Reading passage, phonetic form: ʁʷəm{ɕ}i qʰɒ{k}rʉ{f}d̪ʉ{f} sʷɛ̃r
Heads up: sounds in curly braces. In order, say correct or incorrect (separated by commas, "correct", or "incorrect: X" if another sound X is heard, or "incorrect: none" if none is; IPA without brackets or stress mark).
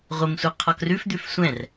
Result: incorrect: sʷ, correct, correct, correct